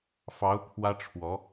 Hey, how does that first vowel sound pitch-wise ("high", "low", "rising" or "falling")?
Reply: rising